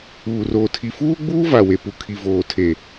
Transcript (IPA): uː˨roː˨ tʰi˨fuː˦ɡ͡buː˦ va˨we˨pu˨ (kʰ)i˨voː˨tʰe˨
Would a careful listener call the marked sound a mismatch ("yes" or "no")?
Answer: no